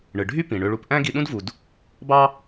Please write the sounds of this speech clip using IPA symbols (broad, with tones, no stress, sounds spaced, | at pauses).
ɳ ɯ˩ ɖʱ y˥ p ĩ˩ ɳ ø˧ ɭ u˧ p ʔ æ̃˥ ɡ i˧ ɗ ũ˥ d v u˩ d | b ɑ˥